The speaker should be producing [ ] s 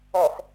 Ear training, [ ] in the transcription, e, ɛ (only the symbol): ɛ